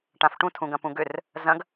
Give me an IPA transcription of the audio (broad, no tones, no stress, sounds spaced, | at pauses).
ʈ ã f ʈ ũ tʰ ũ ɡ ɐ̃ p ũ ɡ ʏ r | z ɐ̃ ɡ